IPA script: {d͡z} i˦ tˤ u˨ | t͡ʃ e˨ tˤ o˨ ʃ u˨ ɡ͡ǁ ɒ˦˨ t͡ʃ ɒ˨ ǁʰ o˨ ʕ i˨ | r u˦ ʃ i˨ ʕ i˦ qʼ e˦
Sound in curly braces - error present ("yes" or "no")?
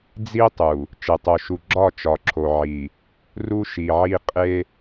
no